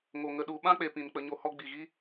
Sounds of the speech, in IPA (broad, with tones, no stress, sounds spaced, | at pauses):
ŋ o˨ ŋ ə˧ ɗ u˨˦ ɓ ã˦ k͡p e˨ p ĩ˨ n k͡p ə˧ ɲ o˧ h ɔ˦ ɡ͡b i˨ ɣ i˦